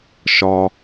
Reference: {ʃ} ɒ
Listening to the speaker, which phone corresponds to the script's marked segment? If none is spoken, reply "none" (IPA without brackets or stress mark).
ʃ